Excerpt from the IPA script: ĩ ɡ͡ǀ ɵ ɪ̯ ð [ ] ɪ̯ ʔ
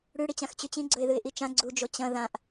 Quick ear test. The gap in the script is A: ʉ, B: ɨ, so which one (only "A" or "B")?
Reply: B